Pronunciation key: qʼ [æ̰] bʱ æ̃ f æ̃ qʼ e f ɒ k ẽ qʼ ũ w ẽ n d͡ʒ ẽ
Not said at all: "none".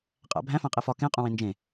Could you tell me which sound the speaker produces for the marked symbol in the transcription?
æ̰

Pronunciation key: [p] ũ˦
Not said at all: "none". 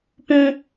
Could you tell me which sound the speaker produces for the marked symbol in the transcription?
p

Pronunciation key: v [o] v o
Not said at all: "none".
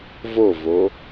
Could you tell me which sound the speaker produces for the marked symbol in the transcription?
o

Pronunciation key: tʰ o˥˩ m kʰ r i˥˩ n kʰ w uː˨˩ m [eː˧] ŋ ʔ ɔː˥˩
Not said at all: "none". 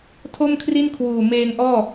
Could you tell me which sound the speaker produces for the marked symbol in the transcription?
eː˧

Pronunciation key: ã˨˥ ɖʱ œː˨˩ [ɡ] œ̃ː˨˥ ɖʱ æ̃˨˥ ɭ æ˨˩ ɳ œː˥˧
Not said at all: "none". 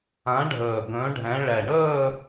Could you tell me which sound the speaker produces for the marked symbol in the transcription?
ɡ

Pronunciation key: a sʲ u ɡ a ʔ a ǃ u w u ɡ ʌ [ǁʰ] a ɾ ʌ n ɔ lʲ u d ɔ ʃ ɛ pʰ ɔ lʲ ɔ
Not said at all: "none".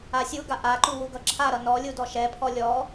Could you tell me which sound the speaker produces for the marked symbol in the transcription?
ǁʰ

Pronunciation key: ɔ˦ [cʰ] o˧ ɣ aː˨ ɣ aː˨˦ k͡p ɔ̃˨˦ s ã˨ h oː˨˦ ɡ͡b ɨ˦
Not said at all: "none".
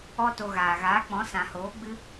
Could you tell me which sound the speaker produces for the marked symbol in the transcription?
t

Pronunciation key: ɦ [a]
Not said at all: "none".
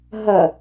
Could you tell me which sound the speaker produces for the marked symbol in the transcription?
ɐ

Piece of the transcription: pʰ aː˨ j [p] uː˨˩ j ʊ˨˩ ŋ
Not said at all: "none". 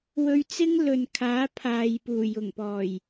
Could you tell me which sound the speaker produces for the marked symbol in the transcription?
p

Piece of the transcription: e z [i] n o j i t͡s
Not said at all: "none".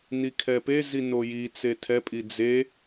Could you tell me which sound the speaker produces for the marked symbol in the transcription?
i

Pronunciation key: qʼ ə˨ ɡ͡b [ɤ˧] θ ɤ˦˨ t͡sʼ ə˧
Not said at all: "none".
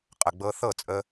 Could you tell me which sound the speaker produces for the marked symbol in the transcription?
ɤ˧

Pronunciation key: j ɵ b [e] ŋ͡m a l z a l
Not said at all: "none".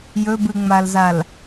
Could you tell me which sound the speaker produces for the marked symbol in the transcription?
ɨ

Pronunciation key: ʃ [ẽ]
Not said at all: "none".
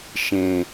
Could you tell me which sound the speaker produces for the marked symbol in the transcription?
ẽ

